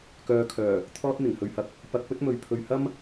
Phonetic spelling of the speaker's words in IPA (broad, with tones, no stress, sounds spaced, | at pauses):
k œː˨ kʰ œː˨˩ | t̪ʰ ɔː˧ t̚ n̪ ɪ˨˩ ŋ h ɵ˨ ɥ h ɐ˧ k̚ | p ɐ˧ k̚ p ɵ˥ t̚ m ɵ˨ ɥ pʰ ɵ˨ ɥ h ɐ˥ m